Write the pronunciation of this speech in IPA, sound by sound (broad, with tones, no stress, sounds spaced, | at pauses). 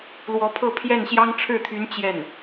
l w ɔ˧˥ pʰ ɤ˥˧ pʰ j ɛ˥˩ n ɕ j ɑ˥ ŋ ʈ͡ʂʰ ɻ̩˥˩ t̪ʰ y˧˥ n t͡ɕ j ɛ˥˩ n